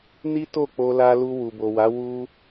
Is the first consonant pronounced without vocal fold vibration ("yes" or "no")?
no